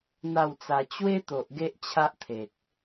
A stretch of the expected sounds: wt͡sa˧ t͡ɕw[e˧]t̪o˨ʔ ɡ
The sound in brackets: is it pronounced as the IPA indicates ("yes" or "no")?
no